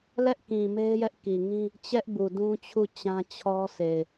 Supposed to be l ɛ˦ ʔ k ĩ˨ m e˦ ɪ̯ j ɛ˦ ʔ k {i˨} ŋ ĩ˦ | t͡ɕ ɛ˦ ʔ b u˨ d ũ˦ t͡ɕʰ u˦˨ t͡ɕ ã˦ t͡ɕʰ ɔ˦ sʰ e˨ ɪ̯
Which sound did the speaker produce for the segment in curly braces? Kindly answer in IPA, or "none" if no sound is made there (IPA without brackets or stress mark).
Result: i˨